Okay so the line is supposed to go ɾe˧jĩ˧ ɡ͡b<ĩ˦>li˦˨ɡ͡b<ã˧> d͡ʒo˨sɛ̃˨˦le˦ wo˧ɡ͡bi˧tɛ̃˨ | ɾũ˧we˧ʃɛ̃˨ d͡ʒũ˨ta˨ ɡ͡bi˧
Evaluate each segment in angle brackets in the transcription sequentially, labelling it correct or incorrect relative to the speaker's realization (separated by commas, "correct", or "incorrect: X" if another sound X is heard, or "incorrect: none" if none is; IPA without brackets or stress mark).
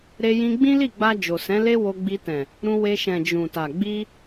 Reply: correct, incorrect: a˧